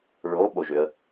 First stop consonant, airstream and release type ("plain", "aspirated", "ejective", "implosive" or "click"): implosive